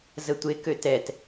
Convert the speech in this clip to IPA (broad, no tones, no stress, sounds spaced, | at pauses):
z ə tʷ e k ø t ɛ t